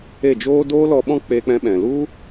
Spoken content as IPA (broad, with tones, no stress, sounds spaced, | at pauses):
e˦˨ d͡ʒ oː˦ d oː˦ l ɔ˧ ɓ ɔ̃˦ k͡p eː˧ k͡p ɛ̃˧ ɓ ɛ̃˨ l u˦